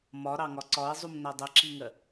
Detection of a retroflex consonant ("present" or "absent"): absent